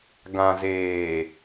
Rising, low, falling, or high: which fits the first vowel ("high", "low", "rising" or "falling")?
low